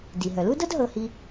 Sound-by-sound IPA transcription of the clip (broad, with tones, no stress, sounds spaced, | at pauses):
d i˩ ɦ œ˩ l u˥ d ɤ˥ d ɦ ɤ˨ h i˨